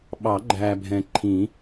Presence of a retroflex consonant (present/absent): absent